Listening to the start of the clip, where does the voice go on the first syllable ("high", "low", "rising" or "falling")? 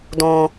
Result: low